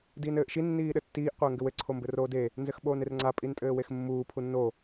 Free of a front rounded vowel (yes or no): yes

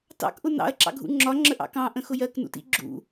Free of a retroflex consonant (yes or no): yes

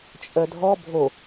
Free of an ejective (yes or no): no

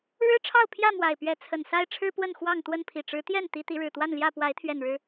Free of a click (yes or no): yes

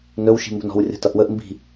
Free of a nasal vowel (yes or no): yes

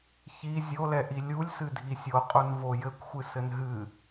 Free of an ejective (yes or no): no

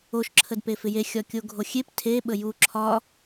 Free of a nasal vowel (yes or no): yes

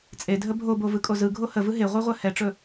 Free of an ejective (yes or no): no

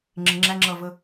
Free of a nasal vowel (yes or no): yes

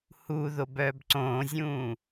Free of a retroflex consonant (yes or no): yes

